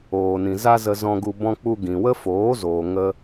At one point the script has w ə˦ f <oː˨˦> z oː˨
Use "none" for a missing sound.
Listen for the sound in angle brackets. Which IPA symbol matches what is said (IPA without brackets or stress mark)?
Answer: oː˨˦